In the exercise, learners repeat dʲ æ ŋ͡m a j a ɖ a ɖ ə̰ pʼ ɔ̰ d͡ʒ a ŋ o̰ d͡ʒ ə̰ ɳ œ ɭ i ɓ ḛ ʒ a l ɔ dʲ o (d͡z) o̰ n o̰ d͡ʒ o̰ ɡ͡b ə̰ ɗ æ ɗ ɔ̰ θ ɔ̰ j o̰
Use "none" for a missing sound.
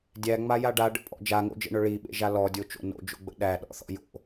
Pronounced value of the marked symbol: t͡ʃ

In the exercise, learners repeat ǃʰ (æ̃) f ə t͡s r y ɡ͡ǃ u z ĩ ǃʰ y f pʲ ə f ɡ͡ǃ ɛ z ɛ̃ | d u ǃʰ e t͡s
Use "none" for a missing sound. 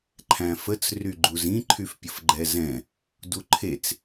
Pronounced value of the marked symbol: æ̃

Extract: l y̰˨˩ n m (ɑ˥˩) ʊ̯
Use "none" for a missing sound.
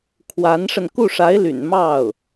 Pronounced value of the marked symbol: ɑ˥˩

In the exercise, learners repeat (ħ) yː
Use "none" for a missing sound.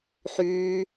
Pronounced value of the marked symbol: ħ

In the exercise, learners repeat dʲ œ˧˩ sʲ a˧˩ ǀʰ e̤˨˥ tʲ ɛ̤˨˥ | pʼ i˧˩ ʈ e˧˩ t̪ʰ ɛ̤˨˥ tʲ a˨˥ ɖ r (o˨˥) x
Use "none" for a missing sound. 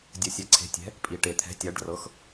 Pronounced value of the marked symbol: ɤ˨˥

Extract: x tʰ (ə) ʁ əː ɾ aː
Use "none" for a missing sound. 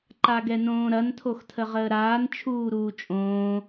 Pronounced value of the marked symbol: ə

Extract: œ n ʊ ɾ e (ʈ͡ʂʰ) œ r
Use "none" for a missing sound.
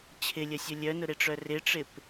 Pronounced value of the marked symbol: ʈ͡ʂ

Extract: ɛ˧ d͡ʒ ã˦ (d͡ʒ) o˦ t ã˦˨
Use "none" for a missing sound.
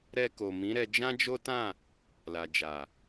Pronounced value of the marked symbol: d͡ʒ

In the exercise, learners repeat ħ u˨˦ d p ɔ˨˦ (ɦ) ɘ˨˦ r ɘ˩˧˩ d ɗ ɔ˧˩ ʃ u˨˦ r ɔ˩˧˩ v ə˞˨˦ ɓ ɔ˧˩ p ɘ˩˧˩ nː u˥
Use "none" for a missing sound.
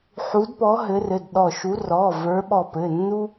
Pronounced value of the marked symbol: ɦ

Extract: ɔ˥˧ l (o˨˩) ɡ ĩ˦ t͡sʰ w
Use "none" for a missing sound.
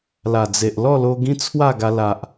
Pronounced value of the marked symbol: o˧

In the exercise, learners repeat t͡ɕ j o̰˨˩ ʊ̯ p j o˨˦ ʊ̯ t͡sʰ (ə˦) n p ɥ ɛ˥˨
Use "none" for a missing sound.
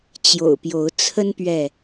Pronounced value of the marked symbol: ə˦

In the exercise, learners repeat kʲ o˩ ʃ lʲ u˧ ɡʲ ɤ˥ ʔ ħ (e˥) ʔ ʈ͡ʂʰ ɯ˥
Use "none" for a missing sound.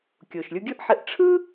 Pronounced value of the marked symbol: e˧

